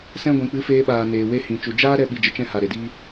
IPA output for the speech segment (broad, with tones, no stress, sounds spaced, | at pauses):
s ɛ̃˧ ɡʷ ĩ˨ k͡p ɨ˨˦ f eː˧ ɓ aː˨ n eː˨ w e˧ h ĩ˨ t͡ʃ u˨ d͡ʒ aː˦ ɾ ɛ˦ ɓ i˧ d͡ʒ ə˧ t͡ʃ ɛ̃˦ h a˨ ɾ e˨ d iː˦